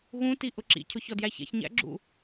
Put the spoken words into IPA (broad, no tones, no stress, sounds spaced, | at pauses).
ɣ ũ t i ʔ ʊ ǁ ḭ cʰ ʊ ç ɔ d j æ ç ɛ̰ ç ɲ æ̰ ɡ͡ǁ ṵ